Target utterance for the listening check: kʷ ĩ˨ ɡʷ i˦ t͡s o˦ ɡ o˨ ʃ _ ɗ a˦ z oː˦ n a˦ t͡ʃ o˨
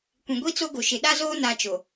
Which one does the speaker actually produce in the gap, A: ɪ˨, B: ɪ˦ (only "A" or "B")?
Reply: A